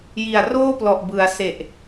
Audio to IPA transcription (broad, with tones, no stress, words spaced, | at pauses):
ji˨˩a̯roː˥˩plɔ˨˩ʔbɯ˩˦a̯ se˨˩ʔ